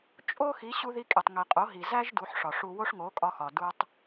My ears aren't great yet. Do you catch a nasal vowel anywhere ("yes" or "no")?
no